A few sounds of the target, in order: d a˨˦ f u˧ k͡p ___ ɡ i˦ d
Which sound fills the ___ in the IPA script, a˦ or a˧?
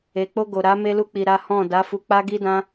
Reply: a˦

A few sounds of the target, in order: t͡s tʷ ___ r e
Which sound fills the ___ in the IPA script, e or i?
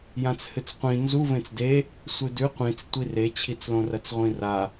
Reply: i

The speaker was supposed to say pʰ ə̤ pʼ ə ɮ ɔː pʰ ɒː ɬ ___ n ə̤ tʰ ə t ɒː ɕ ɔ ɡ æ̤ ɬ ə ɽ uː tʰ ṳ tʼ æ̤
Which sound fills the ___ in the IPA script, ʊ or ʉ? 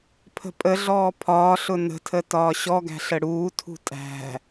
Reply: ʊ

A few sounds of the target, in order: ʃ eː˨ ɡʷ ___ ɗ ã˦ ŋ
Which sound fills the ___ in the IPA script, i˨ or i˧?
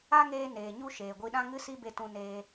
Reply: i˧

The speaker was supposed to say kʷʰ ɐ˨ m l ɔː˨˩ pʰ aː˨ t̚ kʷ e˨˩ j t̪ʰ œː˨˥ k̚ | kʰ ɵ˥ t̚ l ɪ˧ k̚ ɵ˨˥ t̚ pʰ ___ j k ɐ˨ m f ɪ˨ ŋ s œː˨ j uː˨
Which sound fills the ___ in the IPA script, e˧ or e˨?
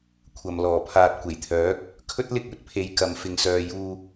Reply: e˨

